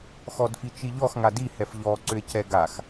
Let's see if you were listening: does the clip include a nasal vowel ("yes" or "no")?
no